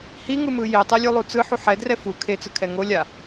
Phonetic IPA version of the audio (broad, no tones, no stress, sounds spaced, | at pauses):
h i ŋ ɯ m ɯ j e tˤ ɛ lʲ u lˠ u t͡s ɯ ħ u ħ ɛ d r ɛ f u kʰ e t͡s ɯ kʰ ɛ ŋ o lʲ a